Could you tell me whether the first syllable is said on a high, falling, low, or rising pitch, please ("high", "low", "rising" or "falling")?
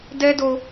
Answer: high